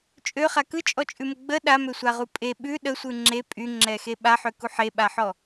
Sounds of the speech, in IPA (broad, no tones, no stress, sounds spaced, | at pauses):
t͡ʃʼ ø χ a k ɯ t͡ʃʼ ɔ t͡ʃʼ ʉ m ə ɡ͡b ə ɗ a m ø sʷ a ʁ u pʼ e ɓ ʉ ɗ ə sʷ ɯ ŋ͡ǁ e pʼ y ŋ͡ǁ ɛ x e ɓ a ħ ø k u ħ e ɓ a ħ ɔ